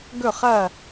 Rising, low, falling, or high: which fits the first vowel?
falling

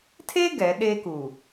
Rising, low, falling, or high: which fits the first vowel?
high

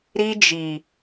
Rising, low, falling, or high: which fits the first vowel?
high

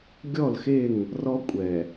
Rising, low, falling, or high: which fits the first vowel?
falling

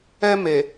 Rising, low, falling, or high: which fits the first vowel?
high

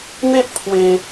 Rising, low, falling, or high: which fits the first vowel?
high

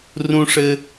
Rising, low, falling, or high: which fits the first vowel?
high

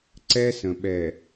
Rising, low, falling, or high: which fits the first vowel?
high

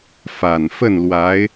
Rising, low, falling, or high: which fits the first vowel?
low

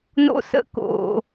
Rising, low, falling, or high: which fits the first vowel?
high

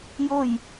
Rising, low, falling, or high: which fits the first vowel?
falling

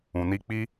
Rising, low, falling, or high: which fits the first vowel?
low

